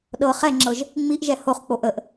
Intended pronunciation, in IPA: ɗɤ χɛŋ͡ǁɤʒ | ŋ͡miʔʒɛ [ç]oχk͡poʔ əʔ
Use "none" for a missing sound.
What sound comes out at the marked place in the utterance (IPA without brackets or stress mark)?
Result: h